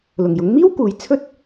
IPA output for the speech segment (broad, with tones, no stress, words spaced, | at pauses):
lʊ˨˩ŋjʊ˨˥ŋ miː˥wkuː˨˥j t͡sʰɵ˥t̚